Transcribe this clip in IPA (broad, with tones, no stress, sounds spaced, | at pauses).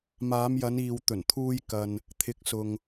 m aː˨˧ m j ɐ˨˧ n iː˨ w t̪ ɵ˨˩ n t̪ʰ uː˧ j k ɐ˨ n | t̪ʰ ɪ˨˥ k̚ s ʊ˨ ŋ